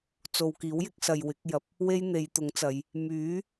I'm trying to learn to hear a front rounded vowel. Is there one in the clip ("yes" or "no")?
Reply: yes